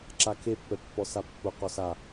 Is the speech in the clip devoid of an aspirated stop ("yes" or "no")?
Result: no